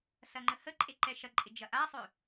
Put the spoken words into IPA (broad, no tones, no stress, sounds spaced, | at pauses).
s ɐ ŋ͡ǃ ə h ə ǃʼ e ǃ ɛ ʃ ɐ ǃʼ ɪ d͡ʒ ɐ ʔ a sˤ ø